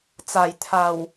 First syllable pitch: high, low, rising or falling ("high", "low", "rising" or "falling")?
low